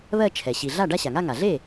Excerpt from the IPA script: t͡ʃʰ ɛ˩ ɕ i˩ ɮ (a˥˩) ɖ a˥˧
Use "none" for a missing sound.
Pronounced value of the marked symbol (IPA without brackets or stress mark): a˥˩